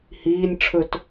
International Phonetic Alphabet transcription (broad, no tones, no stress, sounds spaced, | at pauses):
h iː nʲ ʈ͡ʂʰ ɵ t